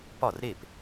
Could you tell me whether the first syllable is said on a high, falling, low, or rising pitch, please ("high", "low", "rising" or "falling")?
falling